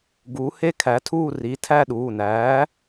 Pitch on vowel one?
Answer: rising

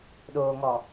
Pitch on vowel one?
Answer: low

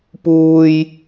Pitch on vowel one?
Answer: low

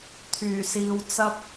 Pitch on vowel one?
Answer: low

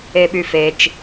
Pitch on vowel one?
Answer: low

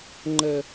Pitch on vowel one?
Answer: high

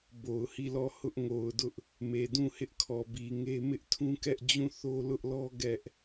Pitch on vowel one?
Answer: low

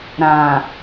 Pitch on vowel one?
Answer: low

